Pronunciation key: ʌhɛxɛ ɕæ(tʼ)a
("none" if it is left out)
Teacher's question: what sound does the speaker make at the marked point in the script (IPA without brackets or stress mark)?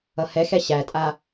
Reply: tʼ